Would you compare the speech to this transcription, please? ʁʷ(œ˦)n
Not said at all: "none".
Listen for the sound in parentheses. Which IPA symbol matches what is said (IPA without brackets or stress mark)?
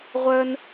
œ˦